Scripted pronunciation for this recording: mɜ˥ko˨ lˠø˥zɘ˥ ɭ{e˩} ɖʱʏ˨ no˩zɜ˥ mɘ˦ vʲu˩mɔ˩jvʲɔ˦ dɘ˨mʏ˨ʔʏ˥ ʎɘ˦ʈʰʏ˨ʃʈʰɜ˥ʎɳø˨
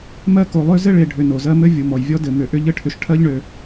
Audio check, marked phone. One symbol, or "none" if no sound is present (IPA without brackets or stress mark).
e˨